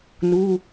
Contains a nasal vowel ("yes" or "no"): no